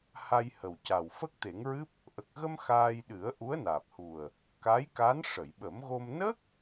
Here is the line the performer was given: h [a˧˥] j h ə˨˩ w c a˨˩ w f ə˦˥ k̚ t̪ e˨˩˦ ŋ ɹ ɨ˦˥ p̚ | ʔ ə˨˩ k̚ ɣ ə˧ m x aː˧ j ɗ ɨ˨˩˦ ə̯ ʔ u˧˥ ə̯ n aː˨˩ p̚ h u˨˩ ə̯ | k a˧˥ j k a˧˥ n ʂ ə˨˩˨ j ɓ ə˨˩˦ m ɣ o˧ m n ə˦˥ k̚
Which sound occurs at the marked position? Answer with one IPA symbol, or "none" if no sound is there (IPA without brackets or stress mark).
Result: a˧